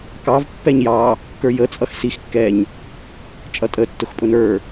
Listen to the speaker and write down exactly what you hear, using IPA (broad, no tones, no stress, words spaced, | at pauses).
kɑv pːɛɲjɑ | kə˞jət͡sʼʌx six kːɛɲ | t͡ʃʼʌtʼə tːʊxpʼʊnə˞